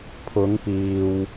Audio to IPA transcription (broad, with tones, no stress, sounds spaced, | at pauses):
pʰ ʊ˨˧ ŋ p iː˨ w